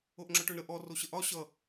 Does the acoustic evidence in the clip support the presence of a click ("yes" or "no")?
yes